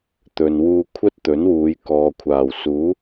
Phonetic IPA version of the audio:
t̪ ɵ˨ n w uː˧ kʷʰ ɐ˥ t̚ t̪ ɵ˨˥ n w uː˨˧ j k ɔː˨ kʷʰ aː˨˩ w s uː˨˥

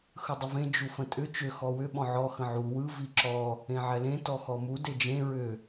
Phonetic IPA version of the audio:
x ɯ dˤ ə v ẽ d͡ʒ u f ə̃ tʼ ʏ t͡ʃ ʏ x ɔ w ʏ ɓ ɔ̃ ʕ ɔ x ə̃ ʕ u w ɯ v i ǁ ɔ | ẽ ʕ ɛ l ẽ t ɔ x ɔ m u d e d͡ʒ ẽ ɹ ʏ

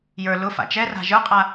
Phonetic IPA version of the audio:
j ə˞ l ʊ f a̰ t͡ʃ ɛ r a̤ ʒ ə˞ qʼ a

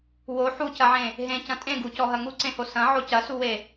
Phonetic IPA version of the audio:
w o ħ u c ɐ ʕ ẽ | ɦ ẽ c ɐ̃ tʼ ẽ ɡ u c ɔ ɦ ɐ ŋ u ǀ ẽ h o s ɐ̃ ʕ o c ɐ s u w e

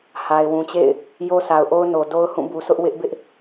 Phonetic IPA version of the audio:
h a˨ ɪ̯ w ũ˨ t͡ɕ ḛ˦˨ ɪ̯ | j o˦ s a˨ ʊ̯ ʔ o˦ ʊ̯ n o˨ d o˦ ʊ̯ h ũ˦˨ b u˨ s ʊ˦ ʔ w ɪ˦ ʔ b ɪ˦ ʔ

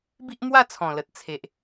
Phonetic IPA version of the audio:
b i˦ ʔ m w a˥˧ t͡sʰ ɔ̃˨˩ l ə˨ t̚ t͡sʰ e˨ ʔ

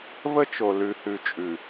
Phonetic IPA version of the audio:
v ə˦ t͡ʃ o˨ l ʉ˨ h ʉ˨ t͡ʃʼ ʉ˨

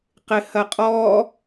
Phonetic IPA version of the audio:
q ɪ h ɐ qʼ ɔ

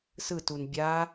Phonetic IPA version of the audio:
s ɯ t u n bʲ a

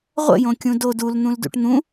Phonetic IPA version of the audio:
ʁʷ ə̰ j õ kʲ ũ d o d u l n̪ ũ l d ṵ ʈ n̪ ũ

